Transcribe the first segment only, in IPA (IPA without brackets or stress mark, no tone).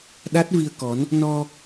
ɗ